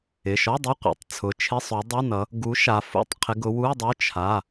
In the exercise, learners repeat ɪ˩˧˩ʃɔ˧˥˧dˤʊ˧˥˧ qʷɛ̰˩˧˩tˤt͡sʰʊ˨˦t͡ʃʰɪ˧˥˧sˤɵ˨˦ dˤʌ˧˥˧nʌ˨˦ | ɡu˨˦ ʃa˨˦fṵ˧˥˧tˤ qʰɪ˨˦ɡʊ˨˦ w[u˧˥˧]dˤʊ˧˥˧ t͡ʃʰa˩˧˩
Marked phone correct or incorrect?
correct